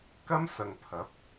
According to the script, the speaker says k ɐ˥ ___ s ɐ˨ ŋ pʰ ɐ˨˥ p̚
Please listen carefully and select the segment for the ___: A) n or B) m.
B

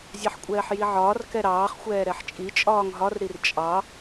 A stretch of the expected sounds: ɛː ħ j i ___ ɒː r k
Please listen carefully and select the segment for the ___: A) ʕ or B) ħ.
A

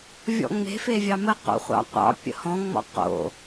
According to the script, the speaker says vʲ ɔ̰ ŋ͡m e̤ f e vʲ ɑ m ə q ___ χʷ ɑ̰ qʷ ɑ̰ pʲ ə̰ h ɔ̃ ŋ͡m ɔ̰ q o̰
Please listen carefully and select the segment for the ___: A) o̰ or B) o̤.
A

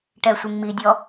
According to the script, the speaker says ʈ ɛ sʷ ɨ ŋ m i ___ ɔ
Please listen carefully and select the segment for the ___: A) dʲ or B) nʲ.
A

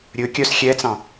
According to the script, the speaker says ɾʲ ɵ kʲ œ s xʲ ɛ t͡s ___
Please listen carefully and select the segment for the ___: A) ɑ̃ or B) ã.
A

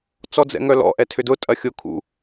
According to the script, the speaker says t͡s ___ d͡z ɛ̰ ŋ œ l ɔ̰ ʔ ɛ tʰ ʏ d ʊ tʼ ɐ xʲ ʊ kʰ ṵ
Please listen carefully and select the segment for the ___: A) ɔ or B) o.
A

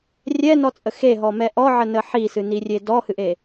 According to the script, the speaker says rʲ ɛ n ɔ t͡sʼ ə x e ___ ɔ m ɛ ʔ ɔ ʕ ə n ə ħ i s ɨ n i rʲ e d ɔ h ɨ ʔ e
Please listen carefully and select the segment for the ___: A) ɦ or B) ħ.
A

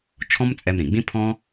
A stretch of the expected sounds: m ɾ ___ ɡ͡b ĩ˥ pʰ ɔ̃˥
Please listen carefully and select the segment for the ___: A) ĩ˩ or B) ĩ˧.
A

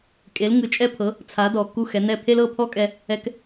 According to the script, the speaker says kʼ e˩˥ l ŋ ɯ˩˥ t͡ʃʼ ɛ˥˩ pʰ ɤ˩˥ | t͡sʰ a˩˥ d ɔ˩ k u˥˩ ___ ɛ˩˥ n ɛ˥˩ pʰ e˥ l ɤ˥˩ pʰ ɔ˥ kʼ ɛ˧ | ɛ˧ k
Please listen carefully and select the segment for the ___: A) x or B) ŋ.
A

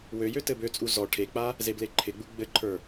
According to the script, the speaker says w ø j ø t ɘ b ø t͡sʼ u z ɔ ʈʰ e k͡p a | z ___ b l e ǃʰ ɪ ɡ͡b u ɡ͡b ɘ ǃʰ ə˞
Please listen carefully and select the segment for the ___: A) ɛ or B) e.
B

